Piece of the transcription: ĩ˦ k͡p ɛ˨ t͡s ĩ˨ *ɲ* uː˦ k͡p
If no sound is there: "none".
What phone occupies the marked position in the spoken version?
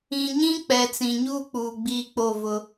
ɲ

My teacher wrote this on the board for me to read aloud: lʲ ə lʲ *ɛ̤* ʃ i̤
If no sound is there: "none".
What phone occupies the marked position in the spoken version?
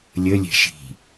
ɛ̤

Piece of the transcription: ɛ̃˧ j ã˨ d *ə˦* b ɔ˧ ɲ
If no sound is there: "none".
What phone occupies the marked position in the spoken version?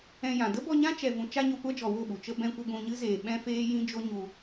ə˦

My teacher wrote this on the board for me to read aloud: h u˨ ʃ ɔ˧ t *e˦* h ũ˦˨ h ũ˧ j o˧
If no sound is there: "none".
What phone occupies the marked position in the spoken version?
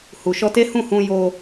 e˦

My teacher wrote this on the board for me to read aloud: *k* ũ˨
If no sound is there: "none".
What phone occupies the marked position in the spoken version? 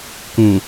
k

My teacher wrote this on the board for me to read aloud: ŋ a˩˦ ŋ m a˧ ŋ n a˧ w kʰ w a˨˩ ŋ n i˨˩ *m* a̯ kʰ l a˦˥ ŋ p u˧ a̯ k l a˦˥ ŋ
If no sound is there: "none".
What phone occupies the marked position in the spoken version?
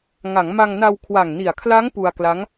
none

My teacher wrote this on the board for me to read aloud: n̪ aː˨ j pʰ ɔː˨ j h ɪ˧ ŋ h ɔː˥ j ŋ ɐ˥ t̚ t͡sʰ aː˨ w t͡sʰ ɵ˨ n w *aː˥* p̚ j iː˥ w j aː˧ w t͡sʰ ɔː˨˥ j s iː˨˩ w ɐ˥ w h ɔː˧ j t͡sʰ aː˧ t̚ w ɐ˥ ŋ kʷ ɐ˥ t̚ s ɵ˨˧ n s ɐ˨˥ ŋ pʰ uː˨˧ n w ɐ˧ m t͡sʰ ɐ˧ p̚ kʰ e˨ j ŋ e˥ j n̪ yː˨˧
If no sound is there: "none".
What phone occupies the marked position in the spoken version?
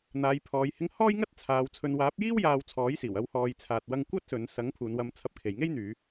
aː˨˥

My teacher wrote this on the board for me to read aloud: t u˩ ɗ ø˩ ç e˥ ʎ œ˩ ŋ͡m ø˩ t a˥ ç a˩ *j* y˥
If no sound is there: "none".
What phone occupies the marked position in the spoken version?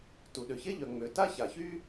ç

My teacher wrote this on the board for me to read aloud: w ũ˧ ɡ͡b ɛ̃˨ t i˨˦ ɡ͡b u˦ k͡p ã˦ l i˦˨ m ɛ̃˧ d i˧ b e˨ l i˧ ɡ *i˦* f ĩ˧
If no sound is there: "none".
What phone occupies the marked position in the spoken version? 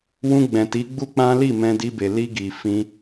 i˨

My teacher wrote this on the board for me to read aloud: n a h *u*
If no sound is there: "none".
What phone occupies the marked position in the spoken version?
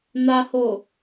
o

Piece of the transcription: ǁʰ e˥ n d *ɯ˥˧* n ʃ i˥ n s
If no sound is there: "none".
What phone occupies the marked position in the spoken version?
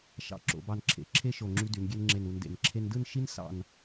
ɯ˥˧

